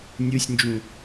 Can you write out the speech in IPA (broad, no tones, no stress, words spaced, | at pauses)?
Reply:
nʲɯsʲnd͡ʒũ